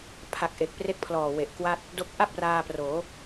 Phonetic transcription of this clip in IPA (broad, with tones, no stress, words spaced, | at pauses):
pʰa˨˩k̚ ʔe˨˩k̚pre˥˩k̚pʰlɔː˨˩we˨˩ʔ kwa˥˩t̚ | do˦˥k̚ ʔa˥˩p̚ raː˧proː˩˦